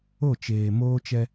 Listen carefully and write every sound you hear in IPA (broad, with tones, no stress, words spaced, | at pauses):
o˦˨t͡ʃeː˨ moː˦t͡ʃɛ˦